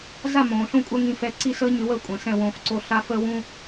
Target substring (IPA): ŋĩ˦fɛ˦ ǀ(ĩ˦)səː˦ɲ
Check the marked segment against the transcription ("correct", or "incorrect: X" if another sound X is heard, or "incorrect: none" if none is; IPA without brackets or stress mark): incorrect: i˦